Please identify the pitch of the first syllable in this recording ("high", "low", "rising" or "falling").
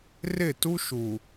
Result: falling